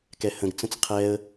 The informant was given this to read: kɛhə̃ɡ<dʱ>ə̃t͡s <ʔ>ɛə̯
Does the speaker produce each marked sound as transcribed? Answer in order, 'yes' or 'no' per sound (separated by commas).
no, no